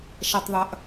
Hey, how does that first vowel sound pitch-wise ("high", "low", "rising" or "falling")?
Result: low